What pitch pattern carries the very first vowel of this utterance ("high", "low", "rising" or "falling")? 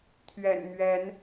low